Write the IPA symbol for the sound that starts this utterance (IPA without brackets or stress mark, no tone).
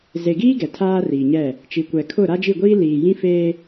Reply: z